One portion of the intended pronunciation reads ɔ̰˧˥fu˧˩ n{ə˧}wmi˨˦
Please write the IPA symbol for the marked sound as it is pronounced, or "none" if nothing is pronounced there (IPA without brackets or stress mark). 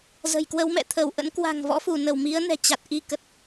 ə˧˩